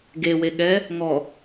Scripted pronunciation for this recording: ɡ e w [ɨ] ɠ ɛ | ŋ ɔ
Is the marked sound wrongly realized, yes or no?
yes